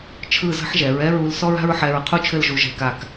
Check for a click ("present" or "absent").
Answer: absent